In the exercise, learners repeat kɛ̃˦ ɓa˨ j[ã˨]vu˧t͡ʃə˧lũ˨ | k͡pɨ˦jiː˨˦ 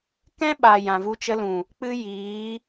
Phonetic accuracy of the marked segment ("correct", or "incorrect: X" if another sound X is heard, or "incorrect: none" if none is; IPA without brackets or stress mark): correct